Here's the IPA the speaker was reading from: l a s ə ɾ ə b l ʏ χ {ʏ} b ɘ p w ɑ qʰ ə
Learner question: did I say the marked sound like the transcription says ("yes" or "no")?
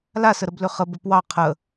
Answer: no